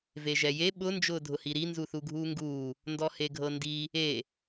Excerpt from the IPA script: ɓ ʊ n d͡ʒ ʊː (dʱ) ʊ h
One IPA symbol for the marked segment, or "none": dʱ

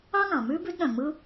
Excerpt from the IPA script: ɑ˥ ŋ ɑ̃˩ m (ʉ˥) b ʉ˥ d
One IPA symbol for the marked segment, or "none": ʉ˥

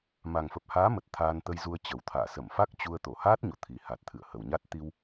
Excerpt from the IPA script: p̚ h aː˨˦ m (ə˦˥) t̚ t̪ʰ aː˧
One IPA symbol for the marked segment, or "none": ə˨˩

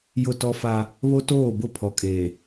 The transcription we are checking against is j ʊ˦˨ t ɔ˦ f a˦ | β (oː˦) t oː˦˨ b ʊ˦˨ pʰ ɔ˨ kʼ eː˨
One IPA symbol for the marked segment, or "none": o˦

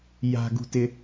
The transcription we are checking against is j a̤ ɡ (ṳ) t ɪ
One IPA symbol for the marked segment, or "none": ṳ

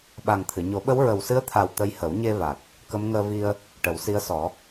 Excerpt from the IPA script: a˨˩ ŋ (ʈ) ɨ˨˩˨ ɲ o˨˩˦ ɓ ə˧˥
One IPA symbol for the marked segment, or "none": t̪ʰ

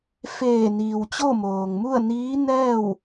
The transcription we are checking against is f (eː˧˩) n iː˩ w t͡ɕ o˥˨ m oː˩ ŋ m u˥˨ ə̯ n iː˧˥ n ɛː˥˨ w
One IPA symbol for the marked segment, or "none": eː˧˩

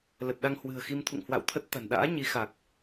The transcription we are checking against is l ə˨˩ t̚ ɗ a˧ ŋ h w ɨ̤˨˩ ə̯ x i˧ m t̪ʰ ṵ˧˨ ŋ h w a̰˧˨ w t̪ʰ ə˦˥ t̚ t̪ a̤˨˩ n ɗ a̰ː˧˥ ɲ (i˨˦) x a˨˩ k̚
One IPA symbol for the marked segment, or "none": i˨˦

